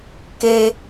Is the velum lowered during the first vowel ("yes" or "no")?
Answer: no